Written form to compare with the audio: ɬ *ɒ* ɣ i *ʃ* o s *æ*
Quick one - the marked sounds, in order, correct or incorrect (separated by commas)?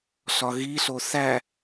correct, incorrect, correct